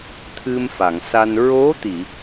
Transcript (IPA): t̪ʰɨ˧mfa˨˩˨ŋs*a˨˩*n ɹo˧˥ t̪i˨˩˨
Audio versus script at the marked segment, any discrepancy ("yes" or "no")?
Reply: yes